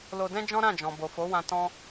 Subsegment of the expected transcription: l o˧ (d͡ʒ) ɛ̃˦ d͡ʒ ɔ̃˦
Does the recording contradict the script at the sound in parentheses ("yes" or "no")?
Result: yes